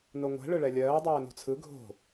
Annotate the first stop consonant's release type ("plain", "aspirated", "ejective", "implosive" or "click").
plain